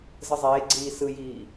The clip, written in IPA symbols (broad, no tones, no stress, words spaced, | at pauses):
zɯzˤeːɡ͡ǀiː sɯjiː